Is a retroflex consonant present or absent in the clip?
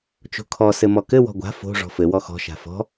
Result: present